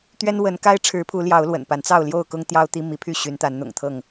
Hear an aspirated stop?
yes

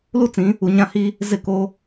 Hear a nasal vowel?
yes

